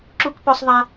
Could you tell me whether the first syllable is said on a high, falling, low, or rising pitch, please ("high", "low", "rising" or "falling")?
high